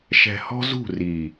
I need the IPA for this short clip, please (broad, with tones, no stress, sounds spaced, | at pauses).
ʃ ɛ̤˨ h ɔ̤˦ z ṳ˦˨ r i˨